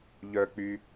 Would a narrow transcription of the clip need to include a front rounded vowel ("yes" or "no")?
yes